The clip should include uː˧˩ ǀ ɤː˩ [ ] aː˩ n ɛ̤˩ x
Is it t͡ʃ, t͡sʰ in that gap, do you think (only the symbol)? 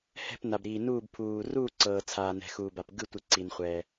t͡sʰ